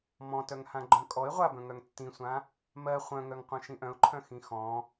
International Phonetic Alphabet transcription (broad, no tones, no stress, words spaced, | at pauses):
mɔ̃tœŋ hãɡ͡ǃœ̃kʼɔɪ̯ ʁʷabœ̃ŋœŋ tːĩsʷã | mɜ χʷœ̃ŋœŋ qʷœ̃ʃĩʔœ̃ʊ̯ǃʰœ̃ xĩxɔ̃